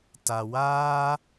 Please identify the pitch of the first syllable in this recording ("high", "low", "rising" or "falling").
low